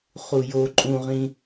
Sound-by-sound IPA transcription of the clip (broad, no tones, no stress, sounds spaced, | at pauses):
χ u j o ǃʼ ũ ʁ ĩ